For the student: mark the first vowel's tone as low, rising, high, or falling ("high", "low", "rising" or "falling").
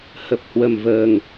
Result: low